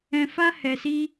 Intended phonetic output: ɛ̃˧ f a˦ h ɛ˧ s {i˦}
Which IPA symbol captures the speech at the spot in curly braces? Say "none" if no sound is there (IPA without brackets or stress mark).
i˦